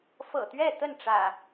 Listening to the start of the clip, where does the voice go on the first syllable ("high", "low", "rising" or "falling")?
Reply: low